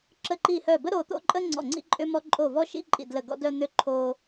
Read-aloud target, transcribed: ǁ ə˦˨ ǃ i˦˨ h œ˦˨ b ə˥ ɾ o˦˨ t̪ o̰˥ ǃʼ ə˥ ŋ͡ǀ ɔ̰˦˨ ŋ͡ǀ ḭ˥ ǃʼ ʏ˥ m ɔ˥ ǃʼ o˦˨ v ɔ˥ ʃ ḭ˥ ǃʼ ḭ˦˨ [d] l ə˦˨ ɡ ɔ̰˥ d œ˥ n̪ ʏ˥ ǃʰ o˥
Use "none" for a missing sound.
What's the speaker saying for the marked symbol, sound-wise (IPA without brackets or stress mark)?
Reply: d